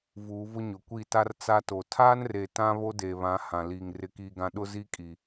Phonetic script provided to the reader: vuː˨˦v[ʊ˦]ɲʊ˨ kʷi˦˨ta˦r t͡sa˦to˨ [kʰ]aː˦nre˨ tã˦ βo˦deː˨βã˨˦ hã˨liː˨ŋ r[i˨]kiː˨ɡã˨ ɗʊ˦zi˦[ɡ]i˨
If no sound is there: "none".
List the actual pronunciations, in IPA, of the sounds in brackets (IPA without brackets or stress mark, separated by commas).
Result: ʊ˦, tʰ, ɪ˨, kʼ